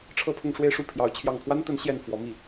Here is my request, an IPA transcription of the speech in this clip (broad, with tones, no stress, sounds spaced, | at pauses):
ʈ͡ʂʰ ɤ˥˧ pʰ ʊ˥˧ ŋ ʂ w e˥˧ ɪ̯ ʂ u˥˩ pʰ j ɑ˧˥ ʊ̯ t͡ɕʰ j ɑ˥˩ ŋ pʰ w a˥ n t̪ ə˧˥ n ɕ j ɛ˥˩ n f w ɔ˧˥ m i˥˩